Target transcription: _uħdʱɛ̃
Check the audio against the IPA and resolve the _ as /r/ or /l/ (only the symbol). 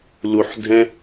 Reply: l